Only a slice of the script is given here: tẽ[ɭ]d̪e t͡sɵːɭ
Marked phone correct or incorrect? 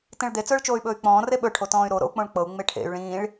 correct